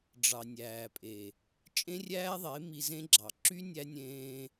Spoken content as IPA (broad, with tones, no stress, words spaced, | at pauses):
ɖ͡ʐɑ˨nʲæː˨pʼe˨ | t͡ʃʼẽ˦rʲæː˦ðˤe˨˦ mi˧zẽ˦ɡ͡ǁɑ˨ ǁy˦ nʲæ˧nʲẽː˧